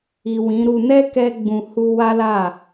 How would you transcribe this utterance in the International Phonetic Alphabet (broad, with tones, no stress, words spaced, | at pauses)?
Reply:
i˨ wĩ˨˦ɾu˧ nɛ˦ kɛ˦ ɡ͡bũ˧hu˦ wa˦la˦˨